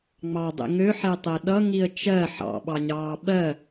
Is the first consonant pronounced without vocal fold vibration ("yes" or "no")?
no